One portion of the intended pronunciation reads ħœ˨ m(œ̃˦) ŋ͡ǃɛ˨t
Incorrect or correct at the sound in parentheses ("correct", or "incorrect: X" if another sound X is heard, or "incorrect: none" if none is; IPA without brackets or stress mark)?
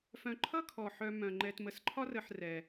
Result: incorrect: œ̃˩